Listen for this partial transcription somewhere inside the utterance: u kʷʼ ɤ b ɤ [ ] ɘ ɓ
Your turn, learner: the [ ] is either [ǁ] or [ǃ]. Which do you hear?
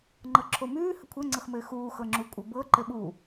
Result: ǃ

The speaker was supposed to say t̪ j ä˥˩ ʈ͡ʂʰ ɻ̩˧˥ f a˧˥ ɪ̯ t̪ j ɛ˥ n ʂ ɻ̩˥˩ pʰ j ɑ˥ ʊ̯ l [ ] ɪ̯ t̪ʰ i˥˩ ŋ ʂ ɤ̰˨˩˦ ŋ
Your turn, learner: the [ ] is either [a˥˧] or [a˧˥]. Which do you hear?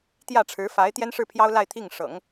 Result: a˥˧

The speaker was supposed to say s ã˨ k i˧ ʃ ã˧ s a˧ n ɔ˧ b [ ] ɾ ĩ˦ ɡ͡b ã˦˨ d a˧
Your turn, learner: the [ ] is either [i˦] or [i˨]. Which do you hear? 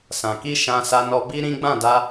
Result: i˦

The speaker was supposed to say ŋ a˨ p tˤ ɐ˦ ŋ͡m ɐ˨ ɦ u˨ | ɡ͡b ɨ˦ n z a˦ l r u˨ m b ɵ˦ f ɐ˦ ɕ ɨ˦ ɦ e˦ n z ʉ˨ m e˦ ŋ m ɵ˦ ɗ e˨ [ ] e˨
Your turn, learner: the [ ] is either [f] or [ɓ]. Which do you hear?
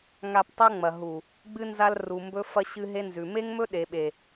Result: ɓ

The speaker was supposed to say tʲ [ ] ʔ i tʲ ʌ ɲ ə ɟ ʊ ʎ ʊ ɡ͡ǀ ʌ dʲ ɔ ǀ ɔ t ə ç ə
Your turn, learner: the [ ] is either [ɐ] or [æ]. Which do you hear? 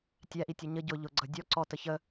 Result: æ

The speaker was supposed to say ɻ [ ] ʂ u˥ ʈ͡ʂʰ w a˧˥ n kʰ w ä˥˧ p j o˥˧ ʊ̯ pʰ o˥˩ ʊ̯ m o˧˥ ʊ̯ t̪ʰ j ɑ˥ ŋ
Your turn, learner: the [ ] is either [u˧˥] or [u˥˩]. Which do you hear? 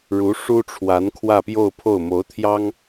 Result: u˧˥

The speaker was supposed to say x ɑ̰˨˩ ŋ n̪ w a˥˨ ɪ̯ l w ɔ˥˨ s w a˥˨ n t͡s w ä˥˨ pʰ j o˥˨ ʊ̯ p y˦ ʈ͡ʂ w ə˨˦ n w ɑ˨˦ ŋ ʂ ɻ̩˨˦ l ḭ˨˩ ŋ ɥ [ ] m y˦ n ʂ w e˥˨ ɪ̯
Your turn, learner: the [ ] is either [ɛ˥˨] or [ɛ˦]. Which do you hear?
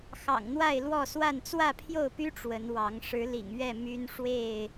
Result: ɛ˥˨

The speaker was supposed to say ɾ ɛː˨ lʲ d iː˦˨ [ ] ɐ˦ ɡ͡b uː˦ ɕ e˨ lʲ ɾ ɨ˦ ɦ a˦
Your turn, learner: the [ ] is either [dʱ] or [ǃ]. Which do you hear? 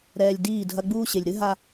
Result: dʱ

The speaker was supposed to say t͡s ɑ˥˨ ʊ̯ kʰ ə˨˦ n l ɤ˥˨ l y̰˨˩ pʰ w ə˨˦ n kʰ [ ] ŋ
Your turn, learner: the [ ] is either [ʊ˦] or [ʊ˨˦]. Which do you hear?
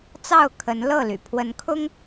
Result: ʊ˦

